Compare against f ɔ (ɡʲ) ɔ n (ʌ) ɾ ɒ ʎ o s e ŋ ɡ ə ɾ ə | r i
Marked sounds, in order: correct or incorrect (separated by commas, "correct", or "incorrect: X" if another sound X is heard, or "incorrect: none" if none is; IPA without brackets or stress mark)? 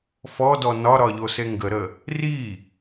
incorrect: d, incorrect: ɒ